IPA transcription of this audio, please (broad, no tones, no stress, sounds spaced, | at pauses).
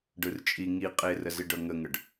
ɖ ɯ r t͡ʃʼ i ŋ i qʼ e r ə z i ɖ ɤ ŋ ə ŋ ə ɖ